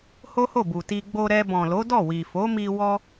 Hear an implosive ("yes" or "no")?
no